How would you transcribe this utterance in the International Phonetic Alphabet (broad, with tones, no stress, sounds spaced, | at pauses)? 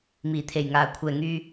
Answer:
m iː˨˩ t̪ʰ e˨˩ j ŋ aː˨˩ kʷʰ ɛː˨˩ ŋ yː˧